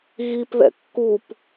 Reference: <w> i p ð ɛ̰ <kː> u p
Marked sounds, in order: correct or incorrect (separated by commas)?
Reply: incorrect, correct